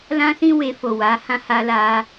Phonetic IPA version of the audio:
l ã˦ s ĩ˦ w e˧ f o˨ w a˨˦ h ã˦ h a˧ l a˧

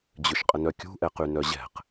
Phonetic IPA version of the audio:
d͡ʑ ʏ ʃ qʼ ə n œ kʲ ṳ ʔ ɛ q y n œ ʑ ɛ̤ q

